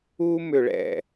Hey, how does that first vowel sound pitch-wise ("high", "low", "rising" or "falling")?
high